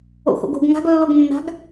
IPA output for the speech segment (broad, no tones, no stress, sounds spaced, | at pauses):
o̰ x o̰ ɡ o̤ ɡ ŋ a̤ ɡ lː o ɡ nː a̤ ɡ